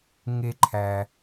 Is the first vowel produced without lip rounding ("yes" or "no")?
yes